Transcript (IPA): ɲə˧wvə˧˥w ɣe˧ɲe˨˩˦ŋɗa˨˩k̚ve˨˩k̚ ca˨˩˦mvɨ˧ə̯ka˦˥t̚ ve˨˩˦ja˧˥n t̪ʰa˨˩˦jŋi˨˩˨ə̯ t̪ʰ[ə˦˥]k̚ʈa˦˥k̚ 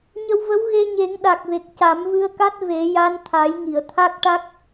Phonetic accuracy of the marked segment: incorrect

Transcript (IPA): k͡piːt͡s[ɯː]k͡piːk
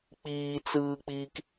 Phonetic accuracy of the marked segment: correct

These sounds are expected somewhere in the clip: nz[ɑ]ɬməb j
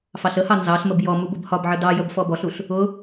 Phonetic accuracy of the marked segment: correct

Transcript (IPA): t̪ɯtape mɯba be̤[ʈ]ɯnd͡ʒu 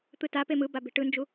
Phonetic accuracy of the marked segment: correct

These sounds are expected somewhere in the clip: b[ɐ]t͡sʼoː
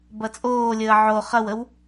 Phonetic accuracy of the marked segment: correct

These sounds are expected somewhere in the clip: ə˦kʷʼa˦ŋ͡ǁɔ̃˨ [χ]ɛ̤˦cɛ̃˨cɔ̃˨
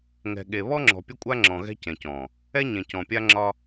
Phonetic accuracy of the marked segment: incorrect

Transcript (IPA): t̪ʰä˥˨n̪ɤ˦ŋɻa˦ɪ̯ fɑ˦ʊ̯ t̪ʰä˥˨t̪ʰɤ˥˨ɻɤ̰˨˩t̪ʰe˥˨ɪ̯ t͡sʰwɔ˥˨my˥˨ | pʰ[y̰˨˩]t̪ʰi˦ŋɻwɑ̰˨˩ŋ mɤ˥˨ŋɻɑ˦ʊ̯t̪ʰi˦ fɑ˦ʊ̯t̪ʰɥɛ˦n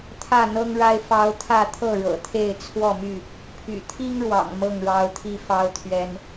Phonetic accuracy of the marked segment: correct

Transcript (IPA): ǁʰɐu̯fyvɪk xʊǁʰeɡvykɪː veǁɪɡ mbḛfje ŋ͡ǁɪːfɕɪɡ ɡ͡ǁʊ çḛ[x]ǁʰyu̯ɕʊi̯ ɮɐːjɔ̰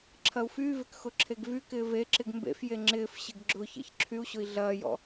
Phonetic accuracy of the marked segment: incorrect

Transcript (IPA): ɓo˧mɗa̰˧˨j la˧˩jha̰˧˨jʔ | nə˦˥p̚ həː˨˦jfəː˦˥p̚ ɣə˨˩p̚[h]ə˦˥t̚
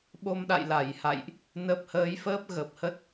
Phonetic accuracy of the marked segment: correct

